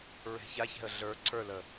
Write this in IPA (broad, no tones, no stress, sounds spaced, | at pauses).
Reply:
ɹ e̤ ç a ç ɛ̤ ə̯ ɮ ə˞ ǀʰ ə˞ l ə